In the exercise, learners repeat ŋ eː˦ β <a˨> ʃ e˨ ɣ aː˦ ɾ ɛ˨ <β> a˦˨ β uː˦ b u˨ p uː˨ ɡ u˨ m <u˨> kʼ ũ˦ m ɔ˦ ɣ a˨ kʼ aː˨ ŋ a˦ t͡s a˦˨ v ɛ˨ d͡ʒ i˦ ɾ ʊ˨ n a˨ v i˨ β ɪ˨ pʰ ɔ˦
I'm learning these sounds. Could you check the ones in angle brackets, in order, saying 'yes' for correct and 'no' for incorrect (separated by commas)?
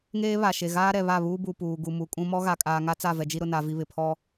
yes, yes, yes